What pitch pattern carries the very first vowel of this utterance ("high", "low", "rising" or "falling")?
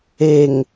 low